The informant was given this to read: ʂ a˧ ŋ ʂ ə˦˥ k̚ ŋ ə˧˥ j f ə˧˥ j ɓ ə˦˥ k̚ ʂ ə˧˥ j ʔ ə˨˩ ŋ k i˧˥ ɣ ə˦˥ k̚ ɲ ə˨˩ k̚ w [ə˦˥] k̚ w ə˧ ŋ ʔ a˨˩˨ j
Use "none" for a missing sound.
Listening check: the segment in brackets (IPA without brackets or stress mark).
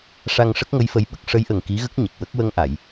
ə˦˥